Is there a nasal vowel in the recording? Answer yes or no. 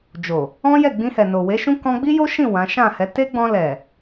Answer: yes